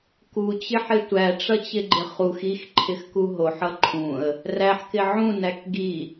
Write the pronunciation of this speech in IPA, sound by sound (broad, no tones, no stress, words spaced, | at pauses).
kut͡ɕɪħɪ tʷæʈ͡ʂʌt͡ɕɪɡ͡ǃɪ χux ixǃʰɪxku ɦoħʌ ǃʰũə̯ | ræħkɪ ʕũnæk ɡi